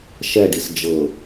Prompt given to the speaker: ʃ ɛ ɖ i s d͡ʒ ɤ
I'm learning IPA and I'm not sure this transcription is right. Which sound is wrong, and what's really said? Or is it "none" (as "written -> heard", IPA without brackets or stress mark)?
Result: none